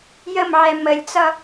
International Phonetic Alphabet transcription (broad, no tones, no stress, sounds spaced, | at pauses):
j ə m ʕ ɛ m ə lʲ t͡s ʌ